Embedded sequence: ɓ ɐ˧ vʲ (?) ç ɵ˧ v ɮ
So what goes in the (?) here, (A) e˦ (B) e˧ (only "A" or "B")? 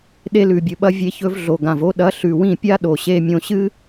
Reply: B